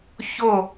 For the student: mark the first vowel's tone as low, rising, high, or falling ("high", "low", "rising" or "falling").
falling